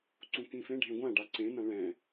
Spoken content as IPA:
ǀ ũ k ĩ f ẽ ɖʱ ẽ ɡʷ ã ɖ a ǀ ẽ n ã ɭ ɛ̃

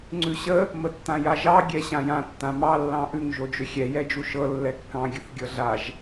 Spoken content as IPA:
ŋ͡ǀ ʉ ɕ ə | m ə tː ã j a ʒ ɑ ɡʲ ɛ ɕ ã j ã tː ã m ɑ lː ɑ̃ ʔ ʉ ŋ ʒ o d͡ʒ ʏ xʲ ɛ j ɛ d͡ʒ u ʃ ɤ lː ɛ kː ɑ̃ ɡʲ ə θ ɡʲ ɤ ɮ a ʒ

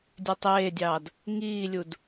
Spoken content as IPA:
dʲ ø tˤ eː dʲ ɑː d | ŋ iː lʲ u d

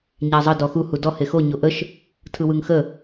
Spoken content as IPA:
ɲ æ zˤ ə d ɔ x u h u d ɔ h e x o ɲ o ʔ ə ʃ | tʰ ɯ w ɯ ŋ x ə

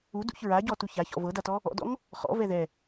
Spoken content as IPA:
u d ṵ ç ɹ a ɟ ɔ t u ç a ç ɔ̰ v ɤ d a t ɔ | ɔ̰ d ɔ̰ ŋ | χ ɔ̰ v ɛ ð ɛ

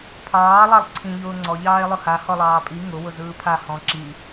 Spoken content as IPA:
pʰ ɑː lˠ ɑ lˠ ǀʰ ĩ ʎ ʊː ŋ͡ǀ ɔ ʎ ɑː e̯ lˠ ʊ h a h ɔ lˠ ɑː pʼ i ŋ ʊ w ʊ z ɯː pʰ a h ɔ̃ ǁ i

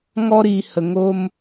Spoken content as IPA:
ŋ ɔ˧ ɾ iː˨ h ə˨ ŋ o˧ m

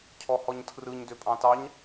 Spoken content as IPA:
cʰ ɔ h ɔ ɲ tʰ r ɯ ɲ d ø pʼ ɑ̃ t ɑ ɲ

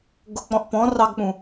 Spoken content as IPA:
ɡ ʊ k͡p ɔ̃ ʔ p ɔ̃ r ɑ ɡ k͡p ũ

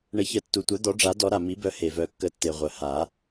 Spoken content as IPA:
ɳ ə˨˩˦ ç ə˨˩˦ tː u˩ tʷ œ˨˩˦ d̪ ɔ˨˩˦ ɖ͡ʐ a˨˩˦ d ɔ˨˩˦ ɾ a˩ m i˨˩˦ b œ˨˩˦ h e˩ v œ˨˩˦ kː ə˨˩˦ tː e˩ ʁʷ œ˩ h a˨˩˦

